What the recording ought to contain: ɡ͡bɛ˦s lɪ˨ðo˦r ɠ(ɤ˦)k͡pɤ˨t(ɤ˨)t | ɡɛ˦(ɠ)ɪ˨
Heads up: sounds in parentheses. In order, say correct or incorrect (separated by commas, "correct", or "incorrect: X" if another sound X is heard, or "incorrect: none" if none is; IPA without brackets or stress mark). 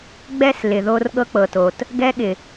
correct, incorrect: o˨, correct